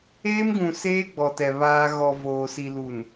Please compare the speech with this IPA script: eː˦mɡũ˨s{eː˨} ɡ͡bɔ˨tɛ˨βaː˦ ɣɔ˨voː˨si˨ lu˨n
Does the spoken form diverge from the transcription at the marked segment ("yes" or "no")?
yes